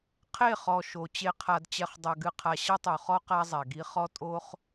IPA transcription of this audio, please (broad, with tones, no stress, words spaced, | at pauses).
qʰe˦˨χɔ˨ ʃo˨ t͡ɕe˨qʰa˨d t͡ɕɛ˨χ dˤɐ˨ɡɨ˨qʰa˨ ɕɐ˦tˤo˨χɔ˦ qa˦zˤɛ˨ɡi˦ χɔ˦ tʼo˦χ